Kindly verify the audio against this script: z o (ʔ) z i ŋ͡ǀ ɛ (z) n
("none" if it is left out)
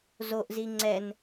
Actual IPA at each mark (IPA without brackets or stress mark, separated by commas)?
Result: ʔ, none